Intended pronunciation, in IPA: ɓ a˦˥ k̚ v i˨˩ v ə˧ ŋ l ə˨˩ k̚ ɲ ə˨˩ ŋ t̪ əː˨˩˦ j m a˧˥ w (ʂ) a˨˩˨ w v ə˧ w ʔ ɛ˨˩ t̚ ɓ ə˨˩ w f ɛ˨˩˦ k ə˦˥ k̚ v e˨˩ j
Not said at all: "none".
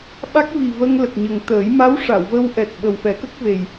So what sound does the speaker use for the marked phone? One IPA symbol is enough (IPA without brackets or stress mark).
ʂ